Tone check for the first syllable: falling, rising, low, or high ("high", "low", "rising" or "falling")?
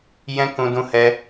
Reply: high